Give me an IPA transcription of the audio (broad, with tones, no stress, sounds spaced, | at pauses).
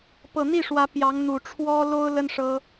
p ɤ˨˩ n̪ i˥˩ ʂ w ä˧˥ p j ɑ˧˥ ŋ n̪ u˨˩ ʈ͡ʂʰ w ɔ˥ l o˥ ʊ̯ l ə˥ n ʂ ɤ˥